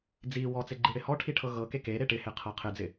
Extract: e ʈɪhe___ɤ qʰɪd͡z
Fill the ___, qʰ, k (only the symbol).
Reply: qʰ